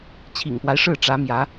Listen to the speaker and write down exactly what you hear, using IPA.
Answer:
t͡ɕʰḭ˨˩ŋpwa˦ɪ̯ʂɻ̩˥˩ ʈ͡ʂä˧˥mjä˧˥

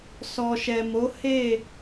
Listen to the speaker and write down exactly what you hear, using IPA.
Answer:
sɔ˨ʃɛ˨mo˨˦ he˦˨

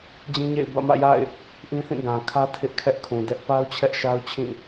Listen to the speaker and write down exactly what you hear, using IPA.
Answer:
d͡ʑĩ˦ɲḛ˦˨ɪ̯ bä̰˦˨mä̰˦˨ja̰˦˨ɪ̯ | ʔĩ˦θĩ˦˨ ɡã˨kʰä˦ tʰɪ˦ʔkʰɛ˦ʔkʰũ˨ dɛ˦ʔ pa˦ʊ̯t͡ɕʰɛ˦ʔ ʃa˦ʊ̯t͡ɕʰĩ˦˨

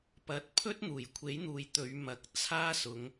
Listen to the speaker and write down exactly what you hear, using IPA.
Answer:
pɐ˧t̚ pʰɵ˥t̚ n̪uː˨˩jkʷʰe˨˥jn̪uː˨j t̪ɵ˨˧ɥmɐ˨k̚ t͡sʰaː˥sʊ˨˧ŋ

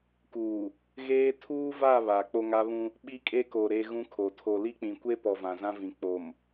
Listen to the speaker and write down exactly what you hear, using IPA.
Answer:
kuː˨ | ɣeː˦ tʰuː˦va˦˨ βa˨ k͡po˦ŋa˦βũ˦ | ɓi˦kʼe˦ko˨ ɾe˦ɣũ˦kʰo˨ tʰo˨li˦k͡pĩ˨ kʷe˦pɔ˨ vã˨zã˦vĩ˨ k͡po˨m

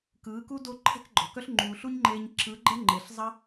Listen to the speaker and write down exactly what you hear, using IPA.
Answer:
kɯː˨˦ ku˦ do˦ ǃʰɛ̤˦kɡ͡ǃɔ̤˨kœ˦ɬ ŋ͡ǃuː˨ɬu˦ɲŋ͡ǃeː˧ɲ ǁɯ˨˦ɡ͡ǃɛ˦ ŋ͡ǃe˨ɬ zˤɐ˦

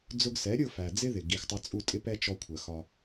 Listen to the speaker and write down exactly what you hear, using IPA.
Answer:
d͡zʊ˧ɡsɛ˨˦ ɾʲʊ˦˨ fæ˨ d͡zɪ˦ðɪ˨ ɡi˨xtˤɜ˧t͡sʼu˦˨tʼɪ˦ pɛ˦ t͡ʃɔ˧kʷʰɜ˨xɒ˧

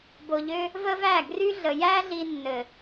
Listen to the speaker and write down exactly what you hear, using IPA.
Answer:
bo˨ʎø˧ | və˦væ˦˨ ɡry˦ɮə˨ jæ˦ɮi˧ nːɘ˨

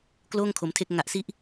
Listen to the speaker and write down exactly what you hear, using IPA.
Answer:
kloː˥˩ŋkʰo˩˦mtʰe˦˥k̚ ŋa˨˩ʔsi˦˥ʔ

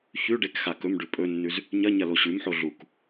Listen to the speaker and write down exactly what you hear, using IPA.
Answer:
çʉ ɖekxakɵmɖʉ pʼɵnːʉz | ɲɐɲɐ loɕʉmħo ɮuk

